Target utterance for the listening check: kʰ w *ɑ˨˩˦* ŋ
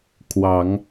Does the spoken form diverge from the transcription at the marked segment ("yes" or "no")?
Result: no